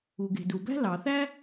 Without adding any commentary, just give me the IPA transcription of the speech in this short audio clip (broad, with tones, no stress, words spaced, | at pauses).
u˩ɡe̤˩du˩bæ̤˥ lɑ˩θæ˥